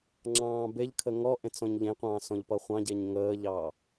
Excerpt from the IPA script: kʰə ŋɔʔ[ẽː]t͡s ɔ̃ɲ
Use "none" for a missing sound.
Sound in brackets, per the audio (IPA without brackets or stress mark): ẽ